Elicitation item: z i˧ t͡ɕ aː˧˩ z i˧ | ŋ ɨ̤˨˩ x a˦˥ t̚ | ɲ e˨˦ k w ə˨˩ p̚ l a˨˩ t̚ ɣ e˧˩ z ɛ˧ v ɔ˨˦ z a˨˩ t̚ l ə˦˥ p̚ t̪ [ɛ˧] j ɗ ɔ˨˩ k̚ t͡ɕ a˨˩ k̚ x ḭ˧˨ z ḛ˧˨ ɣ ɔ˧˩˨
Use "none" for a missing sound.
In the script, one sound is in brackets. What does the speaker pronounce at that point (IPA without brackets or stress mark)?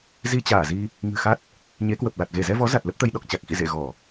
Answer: ə˧